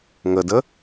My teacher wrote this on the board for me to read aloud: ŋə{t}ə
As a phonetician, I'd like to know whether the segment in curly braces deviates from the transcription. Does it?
yes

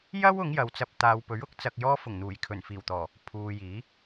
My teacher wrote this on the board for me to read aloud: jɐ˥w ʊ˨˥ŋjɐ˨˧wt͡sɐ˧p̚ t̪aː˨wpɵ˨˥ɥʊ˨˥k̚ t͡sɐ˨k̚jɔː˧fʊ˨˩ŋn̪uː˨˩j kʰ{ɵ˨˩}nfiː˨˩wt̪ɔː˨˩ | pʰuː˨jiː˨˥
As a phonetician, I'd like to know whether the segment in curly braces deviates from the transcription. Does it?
no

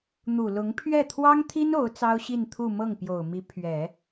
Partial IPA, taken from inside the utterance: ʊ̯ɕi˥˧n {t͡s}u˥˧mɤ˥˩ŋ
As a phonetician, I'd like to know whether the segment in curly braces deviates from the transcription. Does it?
yes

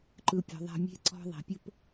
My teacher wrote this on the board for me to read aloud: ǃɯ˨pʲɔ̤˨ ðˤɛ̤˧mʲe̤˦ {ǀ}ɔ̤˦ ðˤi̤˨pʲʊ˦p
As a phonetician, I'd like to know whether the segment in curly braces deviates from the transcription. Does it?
no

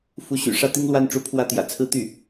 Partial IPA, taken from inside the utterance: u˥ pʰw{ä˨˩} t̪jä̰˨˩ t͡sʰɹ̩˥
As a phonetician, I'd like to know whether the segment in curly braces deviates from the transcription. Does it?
yes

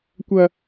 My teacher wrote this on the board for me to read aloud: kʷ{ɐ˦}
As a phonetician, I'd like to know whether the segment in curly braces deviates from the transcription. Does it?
no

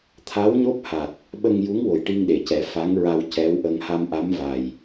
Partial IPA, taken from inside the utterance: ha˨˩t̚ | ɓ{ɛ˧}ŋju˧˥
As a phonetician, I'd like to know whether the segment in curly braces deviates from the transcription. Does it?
yes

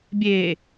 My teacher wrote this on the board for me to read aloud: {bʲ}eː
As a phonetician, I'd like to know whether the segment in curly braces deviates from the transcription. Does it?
no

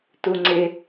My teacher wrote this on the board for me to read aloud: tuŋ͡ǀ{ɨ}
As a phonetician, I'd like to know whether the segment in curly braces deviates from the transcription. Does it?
yes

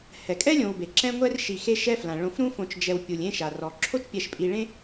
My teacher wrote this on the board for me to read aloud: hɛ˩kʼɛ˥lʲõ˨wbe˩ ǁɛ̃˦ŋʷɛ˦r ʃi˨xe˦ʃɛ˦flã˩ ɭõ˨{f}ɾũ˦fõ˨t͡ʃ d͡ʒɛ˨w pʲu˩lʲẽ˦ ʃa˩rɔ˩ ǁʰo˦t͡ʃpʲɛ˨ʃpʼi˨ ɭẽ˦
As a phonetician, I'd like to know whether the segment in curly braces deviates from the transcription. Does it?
no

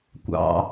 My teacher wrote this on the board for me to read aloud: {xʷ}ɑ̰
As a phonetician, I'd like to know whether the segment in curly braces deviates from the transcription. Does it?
yes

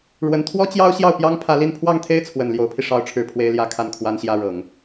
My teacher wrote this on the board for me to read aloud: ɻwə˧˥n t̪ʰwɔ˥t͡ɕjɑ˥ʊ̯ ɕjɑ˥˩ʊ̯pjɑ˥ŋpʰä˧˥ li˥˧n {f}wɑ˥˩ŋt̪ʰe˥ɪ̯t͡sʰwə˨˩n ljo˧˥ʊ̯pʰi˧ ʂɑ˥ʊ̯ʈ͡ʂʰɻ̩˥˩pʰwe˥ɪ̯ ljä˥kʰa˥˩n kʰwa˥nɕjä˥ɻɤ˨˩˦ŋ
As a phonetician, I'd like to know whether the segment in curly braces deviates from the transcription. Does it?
yes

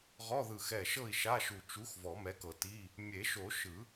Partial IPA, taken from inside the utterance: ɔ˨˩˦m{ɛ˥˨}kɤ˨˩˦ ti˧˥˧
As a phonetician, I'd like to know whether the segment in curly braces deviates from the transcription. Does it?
yes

